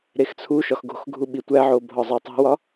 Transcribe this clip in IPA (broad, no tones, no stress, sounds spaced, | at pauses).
ɾ e x t͡sʰ u ʃ ɒ x ɡ o̤ x ɡʱ u ɓ i tʷ æ ʕ o bʱ ɒ zˤ æ tˤ o̤ w ɒ